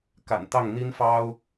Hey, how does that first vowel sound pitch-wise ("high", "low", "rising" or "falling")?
low